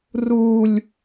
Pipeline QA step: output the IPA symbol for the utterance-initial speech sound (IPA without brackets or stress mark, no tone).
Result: r